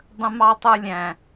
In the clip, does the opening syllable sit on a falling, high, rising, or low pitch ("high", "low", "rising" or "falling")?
high